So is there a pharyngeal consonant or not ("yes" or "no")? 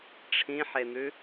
yes